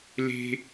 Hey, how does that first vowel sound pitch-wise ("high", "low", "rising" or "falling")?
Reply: high